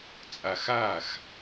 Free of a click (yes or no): yes